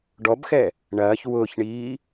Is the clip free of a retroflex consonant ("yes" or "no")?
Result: no